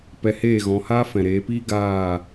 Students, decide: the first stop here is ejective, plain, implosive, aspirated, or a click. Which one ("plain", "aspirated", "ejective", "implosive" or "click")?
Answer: plain